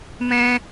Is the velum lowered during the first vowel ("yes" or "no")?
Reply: yes